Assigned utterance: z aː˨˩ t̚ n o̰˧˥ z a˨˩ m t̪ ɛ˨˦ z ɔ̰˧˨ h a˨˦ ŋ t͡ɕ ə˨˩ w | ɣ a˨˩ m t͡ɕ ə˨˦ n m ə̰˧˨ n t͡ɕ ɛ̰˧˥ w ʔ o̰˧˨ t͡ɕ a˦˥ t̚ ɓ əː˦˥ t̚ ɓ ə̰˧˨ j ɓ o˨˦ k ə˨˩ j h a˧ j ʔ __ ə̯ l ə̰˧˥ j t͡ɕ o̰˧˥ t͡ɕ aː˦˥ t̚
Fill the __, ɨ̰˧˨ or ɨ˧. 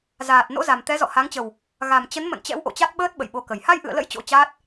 ɨ̰˧˨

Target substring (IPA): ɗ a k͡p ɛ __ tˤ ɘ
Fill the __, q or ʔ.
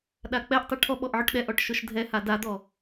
ʔ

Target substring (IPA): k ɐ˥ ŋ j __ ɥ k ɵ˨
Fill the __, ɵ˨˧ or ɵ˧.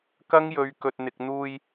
ɵ˨˧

